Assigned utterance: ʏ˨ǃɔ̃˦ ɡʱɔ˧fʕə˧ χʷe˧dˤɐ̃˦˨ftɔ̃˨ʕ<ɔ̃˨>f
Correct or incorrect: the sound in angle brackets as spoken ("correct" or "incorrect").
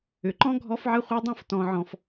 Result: correct